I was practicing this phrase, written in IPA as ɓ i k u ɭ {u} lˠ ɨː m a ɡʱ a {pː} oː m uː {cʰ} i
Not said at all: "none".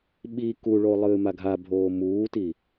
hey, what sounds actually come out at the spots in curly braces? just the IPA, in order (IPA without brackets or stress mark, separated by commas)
o, bʱ, t